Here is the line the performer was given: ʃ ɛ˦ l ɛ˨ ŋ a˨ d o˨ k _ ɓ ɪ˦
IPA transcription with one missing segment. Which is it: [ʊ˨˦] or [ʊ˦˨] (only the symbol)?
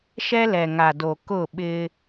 ʊ˦˨